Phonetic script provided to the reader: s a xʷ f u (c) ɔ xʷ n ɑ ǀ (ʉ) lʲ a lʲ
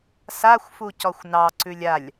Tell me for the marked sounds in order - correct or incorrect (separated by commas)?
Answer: correct, correct